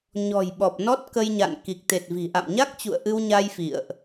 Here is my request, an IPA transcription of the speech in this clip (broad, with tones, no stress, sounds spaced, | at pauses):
ɲ ɔ̤˨˩ j ɓ ɔ˨˩ p̚ n ɔ˦˥ t̚ k ə˧ j ɲ a̰˧˨ n k i˨˩ k̚ t̪ e˨˩ t̚ v i̤˨˩ ʔ a̰˧˨ m ɲ a˦˥ k̚ t͡ɕ ṵ˧˨ ə̯ ʔ ɨ˧ w ɲ a˧ j f ḭ˧˨ ə̯ ʔ